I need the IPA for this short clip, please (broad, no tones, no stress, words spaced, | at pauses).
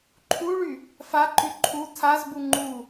ǃʰuɭy | faǃy ǃʰu tʰazbu ŋ͡ǃu